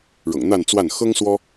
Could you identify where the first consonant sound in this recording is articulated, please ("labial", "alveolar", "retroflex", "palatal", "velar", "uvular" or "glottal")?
retroflex